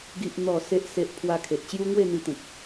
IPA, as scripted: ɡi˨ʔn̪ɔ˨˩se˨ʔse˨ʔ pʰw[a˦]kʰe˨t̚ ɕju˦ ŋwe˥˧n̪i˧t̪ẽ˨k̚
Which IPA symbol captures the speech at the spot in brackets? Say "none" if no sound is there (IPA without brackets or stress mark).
a˧